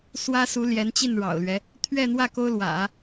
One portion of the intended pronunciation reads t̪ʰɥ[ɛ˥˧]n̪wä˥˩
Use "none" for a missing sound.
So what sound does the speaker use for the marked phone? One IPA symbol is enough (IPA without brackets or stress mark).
ɛ˥˧